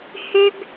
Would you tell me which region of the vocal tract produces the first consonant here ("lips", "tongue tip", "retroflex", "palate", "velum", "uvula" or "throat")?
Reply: throat